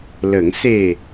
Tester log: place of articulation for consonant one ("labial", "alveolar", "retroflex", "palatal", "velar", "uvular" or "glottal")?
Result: alveolar